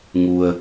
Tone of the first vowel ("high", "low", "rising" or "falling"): low